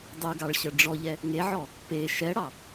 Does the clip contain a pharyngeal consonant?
yes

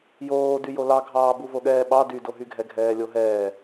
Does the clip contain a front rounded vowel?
yes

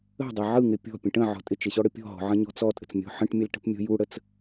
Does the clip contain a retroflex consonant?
yes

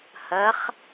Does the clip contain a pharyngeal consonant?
no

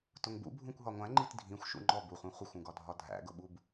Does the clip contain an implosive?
yes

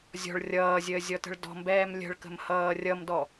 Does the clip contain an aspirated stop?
no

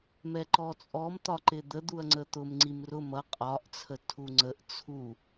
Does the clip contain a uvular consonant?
yes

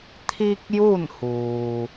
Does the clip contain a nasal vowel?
no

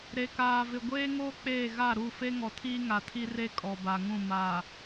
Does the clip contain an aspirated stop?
yes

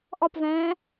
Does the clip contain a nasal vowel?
yes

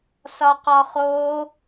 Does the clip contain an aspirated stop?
no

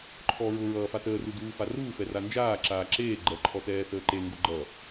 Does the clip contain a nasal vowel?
no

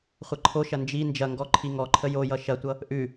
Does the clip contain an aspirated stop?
yes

